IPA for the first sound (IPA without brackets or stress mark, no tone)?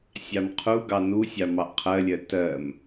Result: sʲ